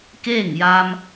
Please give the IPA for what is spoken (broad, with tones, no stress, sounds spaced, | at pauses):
k eː˥˨ ŋ j aː˧ m